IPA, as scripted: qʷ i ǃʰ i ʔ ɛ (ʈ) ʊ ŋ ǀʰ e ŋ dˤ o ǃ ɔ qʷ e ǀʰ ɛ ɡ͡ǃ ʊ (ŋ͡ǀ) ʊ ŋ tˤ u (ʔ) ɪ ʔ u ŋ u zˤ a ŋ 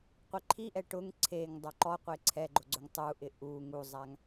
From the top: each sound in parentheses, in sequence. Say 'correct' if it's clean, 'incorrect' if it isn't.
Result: correct, incorrect, correct

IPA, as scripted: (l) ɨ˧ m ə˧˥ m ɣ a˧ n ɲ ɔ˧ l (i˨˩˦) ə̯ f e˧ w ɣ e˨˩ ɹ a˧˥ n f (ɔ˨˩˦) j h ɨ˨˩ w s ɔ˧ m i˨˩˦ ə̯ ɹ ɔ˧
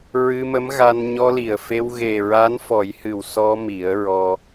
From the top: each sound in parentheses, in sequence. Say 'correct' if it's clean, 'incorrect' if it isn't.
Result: incorrect, incorrect, correct

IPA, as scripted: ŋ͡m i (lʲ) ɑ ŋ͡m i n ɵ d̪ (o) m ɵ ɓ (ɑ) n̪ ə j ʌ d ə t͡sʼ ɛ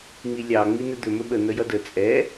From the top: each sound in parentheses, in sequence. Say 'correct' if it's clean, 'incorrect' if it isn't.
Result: correct, incorrect, incorrect

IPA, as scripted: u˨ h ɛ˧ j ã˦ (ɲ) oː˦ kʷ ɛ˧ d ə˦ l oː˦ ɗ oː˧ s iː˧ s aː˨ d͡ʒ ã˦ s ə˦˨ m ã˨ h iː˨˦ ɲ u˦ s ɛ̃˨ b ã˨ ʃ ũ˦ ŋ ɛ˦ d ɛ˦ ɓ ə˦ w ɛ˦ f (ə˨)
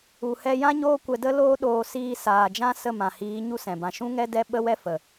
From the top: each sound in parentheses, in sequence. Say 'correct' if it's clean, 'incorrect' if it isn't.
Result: correct, correct

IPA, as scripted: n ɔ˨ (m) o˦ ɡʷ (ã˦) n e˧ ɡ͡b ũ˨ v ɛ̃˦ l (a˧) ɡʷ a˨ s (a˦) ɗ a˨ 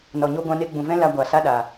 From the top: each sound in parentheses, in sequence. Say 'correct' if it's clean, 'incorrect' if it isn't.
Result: incorrect, incorrect, correct, correct

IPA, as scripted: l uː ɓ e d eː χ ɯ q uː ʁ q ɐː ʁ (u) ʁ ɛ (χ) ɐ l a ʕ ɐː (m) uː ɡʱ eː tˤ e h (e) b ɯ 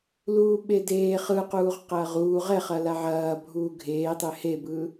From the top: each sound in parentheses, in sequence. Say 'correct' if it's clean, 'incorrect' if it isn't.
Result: incorrect, correct, incorrect, correct

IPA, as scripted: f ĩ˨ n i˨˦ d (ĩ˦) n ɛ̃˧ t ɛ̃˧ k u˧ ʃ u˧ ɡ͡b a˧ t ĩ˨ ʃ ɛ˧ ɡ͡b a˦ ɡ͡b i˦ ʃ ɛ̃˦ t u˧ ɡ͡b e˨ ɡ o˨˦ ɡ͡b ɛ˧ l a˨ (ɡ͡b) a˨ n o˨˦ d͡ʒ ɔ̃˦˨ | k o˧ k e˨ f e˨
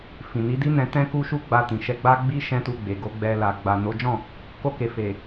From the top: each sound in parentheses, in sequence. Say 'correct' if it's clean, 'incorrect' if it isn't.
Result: incorrect, correct

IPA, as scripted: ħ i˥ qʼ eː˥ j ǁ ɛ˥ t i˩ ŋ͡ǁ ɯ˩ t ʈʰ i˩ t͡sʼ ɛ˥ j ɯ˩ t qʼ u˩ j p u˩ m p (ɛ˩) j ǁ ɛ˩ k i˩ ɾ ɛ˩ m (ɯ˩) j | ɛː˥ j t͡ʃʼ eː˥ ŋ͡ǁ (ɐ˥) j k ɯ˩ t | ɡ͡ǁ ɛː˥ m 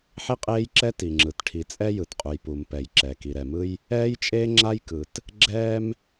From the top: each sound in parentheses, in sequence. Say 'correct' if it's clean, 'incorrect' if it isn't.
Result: correct, incorrect, incorrect

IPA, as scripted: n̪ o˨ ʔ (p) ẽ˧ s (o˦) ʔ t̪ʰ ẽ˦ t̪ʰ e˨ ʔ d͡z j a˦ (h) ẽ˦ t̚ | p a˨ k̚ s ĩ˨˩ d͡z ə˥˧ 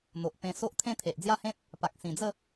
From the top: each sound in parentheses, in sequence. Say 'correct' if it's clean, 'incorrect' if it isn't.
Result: correct, correct, correct

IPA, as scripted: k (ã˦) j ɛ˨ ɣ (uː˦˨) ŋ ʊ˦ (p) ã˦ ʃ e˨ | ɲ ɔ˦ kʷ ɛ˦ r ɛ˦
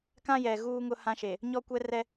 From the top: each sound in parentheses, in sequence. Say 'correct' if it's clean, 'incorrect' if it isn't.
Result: correct, incorrect, incorrect

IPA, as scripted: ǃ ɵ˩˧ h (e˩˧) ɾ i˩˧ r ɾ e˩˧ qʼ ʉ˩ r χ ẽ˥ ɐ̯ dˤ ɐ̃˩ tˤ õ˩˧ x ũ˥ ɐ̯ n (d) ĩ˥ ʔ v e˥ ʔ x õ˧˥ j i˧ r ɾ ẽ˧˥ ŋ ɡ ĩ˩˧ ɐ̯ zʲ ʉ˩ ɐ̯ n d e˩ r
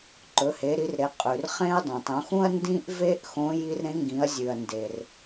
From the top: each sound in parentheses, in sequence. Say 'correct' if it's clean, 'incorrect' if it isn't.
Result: correct, correct

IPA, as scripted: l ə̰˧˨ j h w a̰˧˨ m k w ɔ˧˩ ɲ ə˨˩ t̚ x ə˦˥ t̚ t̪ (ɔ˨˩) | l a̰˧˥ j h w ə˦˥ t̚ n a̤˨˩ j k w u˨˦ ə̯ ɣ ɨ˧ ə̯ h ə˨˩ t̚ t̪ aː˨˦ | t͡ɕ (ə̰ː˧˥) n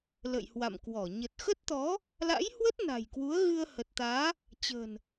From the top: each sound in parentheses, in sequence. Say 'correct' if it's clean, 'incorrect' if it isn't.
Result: incorrect, incorrect

